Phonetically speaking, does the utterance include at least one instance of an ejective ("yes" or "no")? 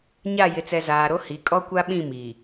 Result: yes